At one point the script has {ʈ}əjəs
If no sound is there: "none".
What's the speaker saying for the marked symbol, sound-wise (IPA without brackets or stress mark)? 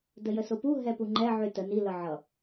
d